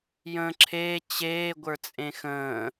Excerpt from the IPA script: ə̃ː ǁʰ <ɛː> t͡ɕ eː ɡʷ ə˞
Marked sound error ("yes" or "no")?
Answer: yes